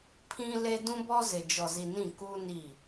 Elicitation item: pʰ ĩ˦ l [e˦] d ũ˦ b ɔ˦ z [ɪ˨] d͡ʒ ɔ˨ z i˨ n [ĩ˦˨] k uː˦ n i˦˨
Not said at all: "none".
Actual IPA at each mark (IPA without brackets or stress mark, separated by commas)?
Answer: e˦, ɪ˨, ĩ˦˨